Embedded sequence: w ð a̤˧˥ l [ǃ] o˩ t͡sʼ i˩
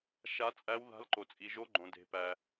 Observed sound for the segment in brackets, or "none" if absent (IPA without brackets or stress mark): ǃ